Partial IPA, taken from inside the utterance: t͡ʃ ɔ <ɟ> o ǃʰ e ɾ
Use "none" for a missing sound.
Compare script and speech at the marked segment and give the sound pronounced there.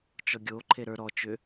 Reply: ɡʲ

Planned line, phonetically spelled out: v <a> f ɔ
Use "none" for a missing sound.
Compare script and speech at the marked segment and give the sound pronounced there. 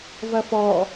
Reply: ɐ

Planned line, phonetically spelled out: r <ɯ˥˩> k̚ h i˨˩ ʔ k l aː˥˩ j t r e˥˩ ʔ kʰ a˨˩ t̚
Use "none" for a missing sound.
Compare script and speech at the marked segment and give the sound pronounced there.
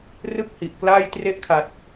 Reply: ɯ˥˩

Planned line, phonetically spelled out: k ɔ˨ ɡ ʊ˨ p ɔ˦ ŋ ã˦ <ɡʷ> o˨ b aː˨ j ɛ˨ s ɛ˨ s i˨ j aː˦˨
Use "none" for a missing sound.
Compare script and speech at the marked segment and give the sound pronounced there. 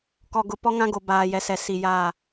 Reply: ɡ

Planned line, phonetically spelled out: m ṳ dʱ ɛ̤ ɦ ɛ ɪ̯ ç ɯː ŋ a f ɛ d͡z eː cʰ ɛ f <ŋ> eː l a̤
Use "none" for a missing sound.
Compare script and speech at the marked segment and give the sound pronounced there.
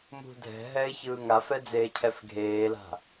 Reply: ɡʱ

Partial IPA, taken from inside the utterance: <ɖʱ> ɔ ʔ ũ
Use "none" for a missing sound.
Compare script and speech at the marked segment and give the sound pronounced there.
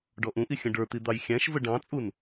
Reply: ɖ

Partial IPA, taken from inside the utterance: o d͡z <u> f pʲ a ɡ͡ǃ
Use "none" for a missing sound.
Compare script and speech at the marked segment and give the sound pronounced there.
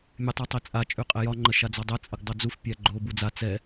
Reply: u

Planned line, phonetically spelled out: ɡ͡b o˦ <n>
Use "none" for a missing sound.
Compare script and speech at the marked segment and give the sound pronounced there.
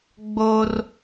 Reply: r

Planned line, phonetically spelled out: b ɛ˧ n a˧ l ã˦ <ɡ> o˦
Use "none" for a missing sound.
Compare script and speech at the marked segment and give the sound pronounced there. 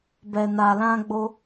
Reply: ɡ͡b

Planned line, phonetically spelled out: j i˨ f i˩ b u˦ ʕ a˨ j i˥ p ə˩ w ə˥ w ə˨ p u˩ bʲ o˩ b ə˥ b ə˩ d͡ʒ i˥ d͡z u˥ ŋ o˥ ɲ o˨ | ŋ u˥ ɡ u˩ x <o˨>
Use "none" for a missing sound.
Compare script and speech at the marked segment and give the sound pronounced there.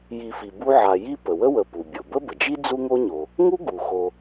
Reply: o˨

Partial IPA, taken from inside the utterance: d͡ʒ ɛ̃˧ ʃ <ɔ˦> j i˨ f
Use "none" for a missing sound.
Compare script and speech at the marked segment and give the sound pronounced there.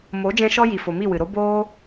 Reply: ɔ˧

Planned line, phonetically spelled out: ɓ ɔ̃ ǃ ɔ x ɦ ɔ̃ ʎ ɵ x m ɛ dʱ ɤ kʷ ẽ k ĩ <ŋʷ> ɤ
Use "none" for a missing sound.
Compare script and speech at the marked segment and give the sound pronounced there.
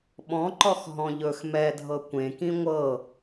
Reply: ŋʷ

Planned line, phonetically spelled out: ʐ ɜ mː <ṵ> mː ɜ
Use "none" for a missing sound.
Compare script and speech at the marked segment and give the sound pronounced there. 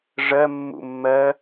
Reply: ṵ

